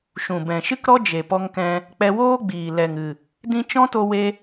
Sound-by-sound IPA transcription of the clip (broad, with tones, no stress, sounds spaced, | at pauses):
ʃ ũ˨ b ɛ̃˨ ʃ ɨ˦ k ɾ ɔ˦ d͡ʒ e˨ p ɔ˧ ŋ k ɛ̃˧ | k͡p ɛ˧ w oː˦ ɡ͡b iː˨ l ɛ˨ ŋ ɨ˨ | d ĩ˦ t͡ʃ ɔ̃˦ t o˧ w e˧